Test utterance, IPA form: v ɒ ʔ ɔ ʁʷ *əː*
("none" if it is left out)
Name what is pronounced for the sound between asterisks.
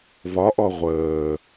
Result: əː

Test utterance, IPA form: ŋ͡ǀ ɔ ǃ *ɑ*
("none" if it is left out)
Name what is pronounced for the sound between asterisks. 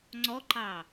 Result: ɑ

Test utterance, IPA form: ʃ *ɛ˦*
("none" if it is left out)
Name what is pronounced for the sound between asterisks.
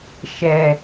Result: ɛ˨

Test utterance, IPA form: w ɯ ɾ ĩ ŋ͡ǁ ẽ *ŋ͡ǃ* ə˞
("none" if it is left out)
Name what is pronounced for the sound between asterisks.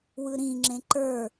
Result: ǃ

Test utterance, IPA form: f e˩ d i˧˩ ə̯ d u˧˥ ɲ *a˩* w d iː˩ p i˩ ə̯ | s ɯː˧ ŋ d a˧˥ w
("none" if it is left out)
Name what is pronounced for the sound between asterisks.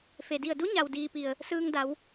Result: a˩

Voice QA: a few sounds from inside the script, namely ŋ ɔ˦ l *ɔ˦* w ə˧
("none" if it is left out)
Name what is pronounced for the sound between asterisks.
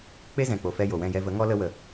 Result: ə˦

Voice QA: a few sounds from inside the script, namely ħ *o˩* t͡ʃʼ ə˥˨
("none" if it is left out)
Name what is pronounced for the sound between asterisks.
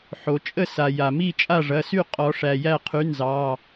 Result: o˩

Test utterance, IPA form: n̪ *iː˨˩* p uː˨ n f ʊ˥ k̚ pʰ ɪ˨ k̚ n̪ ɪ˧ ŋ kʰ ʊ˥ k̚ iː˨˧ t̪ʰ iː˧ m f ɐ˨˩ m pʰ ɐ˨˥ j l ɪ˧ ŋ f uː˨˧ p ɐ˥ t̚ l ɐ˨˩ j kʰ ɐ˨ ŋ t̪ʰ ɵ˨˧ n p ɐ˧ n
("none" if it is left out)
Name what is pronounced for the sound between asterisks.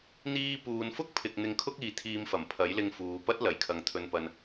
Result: iː˥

